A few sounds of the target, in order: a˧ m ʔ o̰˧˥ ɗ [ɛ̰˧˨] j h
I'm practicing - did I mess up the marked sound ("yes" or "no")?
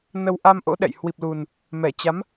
no